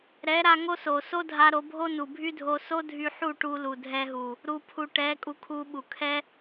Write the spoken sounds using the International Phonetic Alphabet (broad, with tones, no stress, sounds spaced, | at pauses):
ɾ ɛ˨˦ ɾ a˧ ŋ o˦ s o˨ s o˦ dʱ a˧ ɾ o˧ bʱ o˦ n u˨ bʱ y˦ dʱ o˧ s o˦ dʱ y˧ ħ u˦˨ ʈ u˧ l u˨ dʱ ɛ˧ ɦ u˨ | ɾ u˧ pʰ u˨ ʈ ɛ˨˦ kʼ u˧ kʰ u˧ ɓ u˨ kʰ ɛ˦